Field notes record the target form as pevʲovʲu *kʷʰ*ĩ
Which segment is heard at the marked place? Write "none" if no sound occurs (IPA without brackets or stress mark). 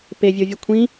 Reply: kʷʰ